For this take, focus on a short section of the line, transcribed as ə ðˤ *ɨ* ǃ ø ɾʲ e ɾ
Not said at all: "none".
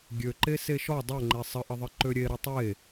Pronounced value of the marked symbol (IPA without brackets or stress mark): ɨ